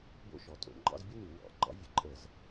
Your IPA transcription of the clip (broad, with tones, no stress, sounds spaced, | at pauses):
b o̰˥ ʃ ɔ˨˩ tʼ o̰˧˩˧ ŋ͡ǃ ɑ̰˥ z bʲ ə˥ n ʉ˧˩˧ w ɑ̰˧˩˧ ɡ͡ǃ ɑ̰˥ vʲ ə˧˩˧ ǃʼ ə˧˩˧ z